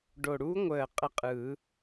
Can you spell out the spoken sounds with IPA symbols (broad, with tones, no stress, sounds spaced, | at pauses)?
ɖ o˨˩ ɽ uː˧˥ ŋʷ əː˨˩ qʼ ə˧˥ qʼ ɯː˨˩˦